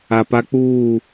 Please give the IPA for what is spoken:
a˨ p a˦ k͡p uː˦˨

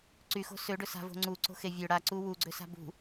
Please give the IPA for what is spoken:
ǀ y x o̤ s ø ɖ ɵ s a̤ v o̤ ŋ͡ǀ u ǀ o̤ x e vʲ ø ɽ a ǀ u w u ɡ͡ǀ ø s a̤ b ṳ

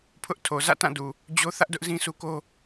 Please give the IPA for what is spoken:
pʰ ʊ˦ ʔ tʰ o˨ z ä̰˦˨ t ã˦˨ d u˨ | d͡ʑ o˦ θ ä˦ ʔ d ʊ˦ ʔ z ĩ˦ s u˦ k o˦

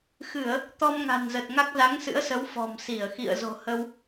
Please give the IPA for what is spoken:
x ɨ˧˩˨ ə̯ | t̪ ɔ˧ m ŋ a̤˨˩ n z ə˨˩ t̚ ŋ a˦˥ k̚ z a˨˦ ŋ s ɨ̰˧˥ ə̯ s ə˨˦ w f ɔ̤˨˩ m s i˧˩ ə̯ x ḭ˧˨ ə̯ z o̤˨˩ h ə˧ w

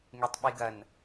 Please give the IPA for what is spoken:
ŋ e tˤ ɓ i ɡ ɐ n

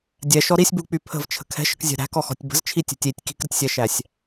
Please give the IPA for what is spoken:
dʲ ɛ ʃ ɔ ɾ i sʲ b u k͡p y pʰ ə̤ v t͡ʃʰ ə̤ kʰ ɛ̤ ʃ ə̤ k zʲ ɛ̤ ɾ æ̤ k ɔ x ɔ̤ tʲ b ə̤ z t͡ʃʰ i tʲ ɛ̤ tʲ i tʲ k i̤ k ɾ ə tʲ sʲ ɛ ʃ æ sʲ

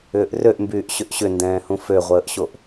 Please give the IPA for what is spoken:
ʏː ʔ r ø ʔ m b yː ʔ ɕ ʏ ʔ ɕ ʏ n d ɛ̃ː h ũ f ø ʁʷ əː ʔ ɕ o ʔ

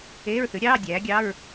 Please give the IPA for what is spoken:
eː˧˥˧ ɹ θ ʉ˩˥ ɾʲ ɑː˧˥˧ dʲ æː˩˥ ɡʲ ɑ˧˥˧ ɹ

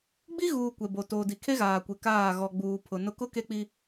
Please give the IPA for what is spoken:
ɡ͡b i˦ ɣ uː˨ kʷ ɛ˨ b o˨ t oː˨ d i˨ kʰ e˦ ɣ aː˨ kʷ e˨ k aː˦˨ ɣ ɔ˨ ɡ͡b uː˨ pʰ ʊ˨ n ʊ˦ k ʊ˦ k e˦ k͡p i˦

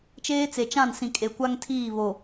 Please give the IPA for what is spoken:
t͡ʃ eː˦ t͡s e˨ t͡ʃ ã˦˨ n s ĩ˨ kʼ e˨ kʷ a˦ ŋ tʰ iː˦˨ β o˨

